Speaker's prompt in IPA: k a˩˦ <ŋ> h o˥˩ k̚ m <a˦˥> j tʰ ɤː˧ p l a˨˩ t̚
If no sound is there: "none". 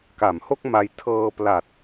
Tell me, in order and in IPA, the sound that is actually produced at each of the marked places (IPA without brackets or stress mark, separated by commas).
m, a˧